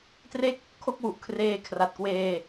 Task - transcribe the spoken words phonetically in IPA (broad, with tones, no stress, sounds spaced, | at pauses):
t r e˥˩ k̚ | kʰ o˥˩ k̚ w u˨˩ ʔ kʰ r eː˧ kʰ r a˨˩ t̚ k w eː˧